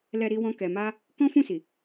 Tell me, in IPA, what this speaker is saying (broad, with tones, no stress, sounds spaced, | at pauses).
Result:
l ɛ˧ ɾ i˦ w ɔ̃˦ k ɛ˧ m a˦ | k ɔ̃˦ f ũ˦˨ s i˨